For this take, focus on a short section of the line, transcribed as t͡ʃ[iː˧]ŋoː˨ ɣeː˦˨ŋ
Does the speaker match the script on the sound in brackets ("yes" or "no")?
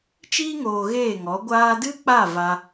yes